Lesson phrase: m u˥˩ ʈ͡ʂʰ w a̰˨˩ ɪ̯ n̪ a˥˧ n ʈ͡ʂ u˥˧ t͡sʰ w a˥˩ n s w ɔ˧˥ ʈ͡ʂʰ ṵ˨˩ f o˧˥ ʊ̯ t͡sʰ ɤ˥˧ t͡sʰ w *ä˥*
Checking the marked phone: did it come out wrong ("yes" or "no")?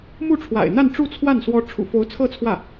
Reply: yes